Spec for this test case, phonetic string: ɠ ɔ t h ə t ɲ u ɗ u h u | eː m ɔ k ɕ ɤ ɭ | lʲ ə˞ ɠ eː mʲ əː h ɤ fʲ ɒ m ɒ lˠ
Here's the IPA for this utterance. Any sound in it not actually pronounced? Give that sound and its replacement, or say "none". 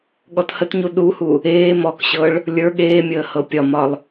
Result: fʲ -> pʲ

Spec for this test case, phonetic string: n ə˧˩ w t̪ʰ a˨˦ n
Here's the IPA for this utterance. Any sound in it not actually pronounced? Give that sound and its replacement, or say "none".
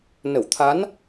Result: none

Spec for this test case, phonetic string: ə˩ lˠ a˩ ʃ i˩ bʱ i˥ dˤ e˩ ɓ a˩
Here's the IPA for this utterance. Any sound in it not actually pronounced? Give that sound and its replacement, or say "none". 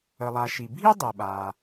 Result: none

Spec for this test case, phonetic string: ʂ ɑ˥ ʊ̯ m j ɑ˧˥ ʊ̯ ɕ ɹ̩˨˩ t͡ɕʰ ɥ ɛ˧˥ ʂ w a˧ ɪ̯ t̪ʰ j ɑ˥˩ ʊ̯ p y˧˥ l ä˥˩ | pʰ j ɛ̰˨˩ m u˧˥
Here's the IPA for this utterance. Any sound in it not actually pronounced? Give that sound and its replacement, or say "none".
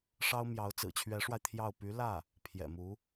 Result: ɕ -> t͡s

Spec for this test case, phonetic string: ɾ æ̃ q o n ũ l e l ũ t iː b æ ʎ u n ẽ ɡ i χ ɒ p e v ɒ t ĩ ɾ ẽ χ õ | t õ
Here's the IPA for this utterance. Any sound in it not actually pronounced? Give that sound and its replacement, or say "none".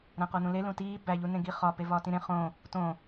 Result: none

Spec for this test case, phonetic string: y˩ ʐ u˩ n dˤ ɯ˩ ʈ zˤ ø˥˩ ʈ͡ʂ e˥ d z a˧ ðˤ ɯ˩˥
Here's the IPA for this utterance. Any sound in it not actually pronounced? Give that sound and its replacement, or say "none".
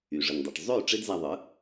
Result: u˩ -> ɯ˩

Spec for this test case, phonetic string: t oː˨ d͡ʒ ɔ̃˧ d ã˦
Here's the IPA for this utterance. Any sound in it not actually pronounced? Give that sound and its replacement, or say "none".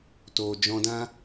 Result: none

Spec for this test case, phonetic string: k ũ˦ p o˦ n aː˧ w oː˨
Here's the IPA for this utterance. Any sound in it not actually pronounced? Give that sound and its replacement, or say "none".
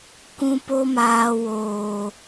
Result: n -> m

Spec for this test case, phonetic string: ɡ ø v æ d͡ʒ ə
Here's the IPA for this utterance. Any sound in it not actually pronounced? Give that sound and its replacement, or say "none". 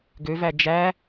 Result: ə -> æ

